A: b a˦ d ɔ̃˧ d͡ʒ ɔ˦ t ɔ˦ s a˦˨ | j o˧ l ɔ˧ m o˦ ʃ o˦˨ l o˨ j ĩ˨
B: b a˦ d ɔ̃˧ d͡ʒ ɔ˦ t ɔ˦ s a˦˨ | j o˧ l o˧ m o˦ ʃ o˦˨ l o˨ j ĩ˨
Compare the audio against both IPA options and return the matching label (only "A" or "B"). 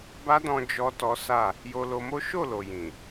B